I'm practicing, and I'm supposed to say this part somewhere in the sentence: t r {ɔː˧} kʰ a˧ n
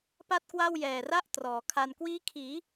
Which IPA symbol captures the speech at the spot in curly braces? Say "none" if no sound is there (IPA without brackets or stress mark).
ɔː˩˦